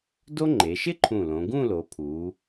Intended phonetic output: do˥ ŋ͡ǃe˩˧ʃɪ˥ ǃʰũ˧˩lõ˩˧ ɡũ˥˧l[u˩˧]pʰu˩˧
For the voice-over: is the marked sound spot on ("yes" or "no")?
no